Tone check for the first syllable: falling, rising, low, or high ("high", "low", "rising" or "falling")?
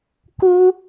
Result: high